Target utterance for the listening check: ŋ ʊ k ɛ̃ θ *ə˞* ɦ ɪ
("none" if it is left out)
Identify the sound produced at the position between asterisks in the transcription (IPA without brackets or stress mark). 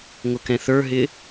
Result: ə˞